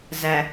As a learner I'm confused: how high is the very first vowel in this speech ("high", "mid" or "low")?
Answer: low